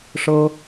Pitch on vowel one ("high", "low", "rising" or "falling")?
high